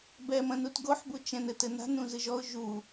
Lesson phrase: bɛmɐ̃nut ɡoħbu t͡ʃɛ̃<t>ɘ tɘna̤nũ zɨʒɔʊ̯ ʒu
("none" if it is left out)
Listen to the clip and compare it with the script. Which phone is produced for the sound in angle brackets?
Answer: n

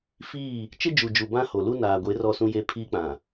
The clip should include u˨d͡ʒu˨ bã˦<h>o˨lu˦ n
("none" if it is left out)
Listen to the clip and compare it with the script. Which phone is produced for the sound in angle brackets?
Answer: h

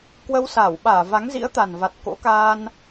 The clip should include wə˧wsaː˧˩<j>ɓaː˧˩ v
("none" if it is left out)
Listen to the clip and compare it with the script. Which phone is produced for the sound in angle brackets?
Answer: w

